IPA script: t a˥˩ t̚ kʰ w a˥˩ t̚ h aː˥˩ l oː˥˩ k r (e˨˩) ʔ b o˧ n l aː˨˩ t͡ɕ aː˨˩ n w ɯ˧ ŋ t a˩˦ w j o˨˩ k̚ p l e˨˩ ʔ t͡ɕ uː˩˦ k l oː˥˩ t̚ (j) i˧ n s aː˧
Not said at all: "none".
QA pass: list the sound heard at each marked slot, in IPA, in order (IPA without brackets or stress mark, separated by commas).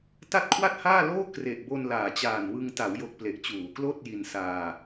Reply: e˨˩, j